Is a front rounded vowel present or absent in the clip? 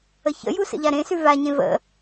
absent